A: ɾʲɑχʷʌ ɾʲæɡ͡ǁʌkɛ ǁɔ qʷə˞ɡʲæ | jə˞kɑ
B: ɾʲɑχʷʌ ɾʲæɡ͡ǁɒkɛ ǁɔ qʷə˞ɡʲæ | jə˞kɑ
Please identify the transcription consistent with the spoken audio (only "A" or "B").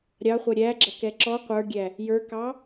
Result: A